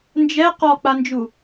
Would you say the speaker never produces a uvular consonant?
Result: no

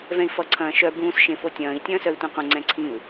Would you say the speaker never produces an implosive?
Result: yes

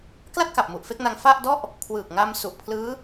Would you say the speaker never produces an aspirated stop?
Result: no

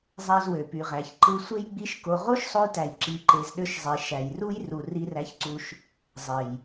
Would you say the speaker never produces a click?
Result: no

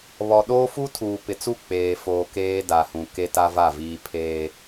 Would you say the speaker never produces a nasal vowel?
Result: no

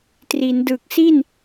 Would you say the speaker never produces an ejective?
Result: yes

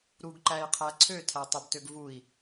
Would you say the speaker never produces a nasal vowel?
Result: yes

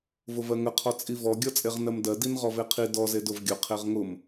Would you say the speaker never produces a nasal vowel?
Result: yes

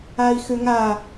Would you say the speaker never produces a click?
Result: yes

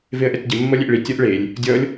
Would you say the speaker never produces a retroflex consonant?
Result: no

